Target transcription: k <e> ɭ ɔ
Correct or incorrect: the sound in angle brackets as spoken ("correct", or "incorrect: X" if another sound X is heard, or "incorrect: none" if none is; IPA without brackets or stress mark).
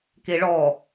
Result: correct